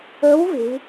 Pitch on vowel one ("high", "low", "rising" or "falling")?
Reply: rising